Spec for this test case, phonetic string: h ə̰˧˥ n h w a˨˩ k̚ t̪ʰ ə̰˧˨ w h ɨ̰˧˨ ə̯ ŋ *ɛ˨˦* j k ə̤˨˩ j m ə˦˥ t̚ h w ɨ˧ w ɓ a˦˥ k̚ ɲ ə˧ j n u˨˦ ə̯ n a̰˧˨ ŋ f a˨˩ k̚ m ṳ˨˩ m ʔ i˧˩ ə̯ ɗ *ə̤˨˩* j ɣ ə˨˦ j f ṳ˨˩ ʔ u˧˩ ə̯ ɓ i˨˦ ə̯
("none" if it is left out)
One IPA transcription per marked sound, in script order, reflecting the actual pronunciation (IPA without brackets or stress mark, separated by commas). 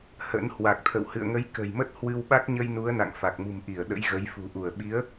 ə˨˦, ə̰˧˥